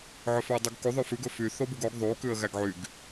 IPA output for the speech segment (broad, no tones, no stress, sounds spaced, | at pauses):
ʕ ɵ f ɵ ə̯ dˤ u ɡ k u ðˤ ʉ f ʉ ɡ ɵ f y θ o b u ɡ o ɡ ðˤ u k ʉ ə̯ ɣ æ ɡ ʕ y ɡ